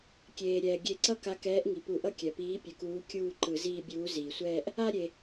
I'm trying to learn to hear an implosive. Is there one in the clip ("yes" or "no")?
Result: no